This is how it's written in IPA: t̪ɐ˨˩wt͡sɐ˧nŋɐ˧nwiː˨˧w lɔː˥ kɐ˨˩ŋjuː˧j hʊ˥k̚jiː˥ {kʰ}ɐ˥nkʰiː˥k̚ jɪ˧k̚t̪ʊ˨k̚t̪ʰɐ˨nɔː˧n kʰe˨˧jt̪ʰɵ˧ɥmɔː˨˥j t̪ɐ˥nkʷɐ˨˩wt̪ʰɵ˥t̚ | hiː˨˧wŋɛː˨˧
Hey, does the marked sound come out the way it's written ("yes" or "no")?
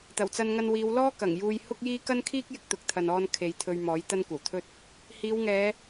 no